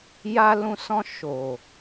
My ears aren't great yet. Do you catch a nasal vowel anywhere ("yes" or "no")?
yes